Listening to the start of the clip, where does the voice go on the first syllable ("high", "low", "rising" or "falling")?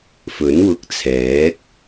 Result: rising